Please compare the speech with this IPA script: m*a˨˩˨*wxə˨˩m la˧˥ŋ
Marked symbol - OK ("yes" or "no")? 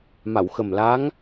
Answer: yes